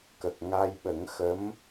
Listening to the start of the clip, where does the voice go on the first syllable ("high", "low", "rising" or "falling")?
low